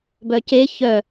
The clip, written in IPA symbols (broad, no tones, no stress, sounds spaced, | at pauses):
b œ c e ç œ